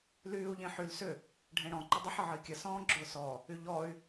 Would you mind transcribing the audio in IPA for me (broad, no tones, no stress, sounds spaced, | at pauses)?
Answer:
l yː u̯ ʎ ẽ ħ y l s ʏ | ɖʱ ẽ ɽ ɔ̃ ǃ ə dˤ ə ħ ə ʕ ə i̯ kʲ ə s ɔ̃ː ɡ͡ǁ ʊː s ɔ | y ʎ ɔ y̯